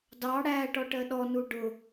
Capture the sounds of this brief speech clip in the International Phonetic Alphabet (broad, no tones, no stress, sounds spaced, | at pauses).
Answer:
d ɑ ɽ æ ʈ ɔ ʈ ɜ ɗ ɔ n u ɖ ʊ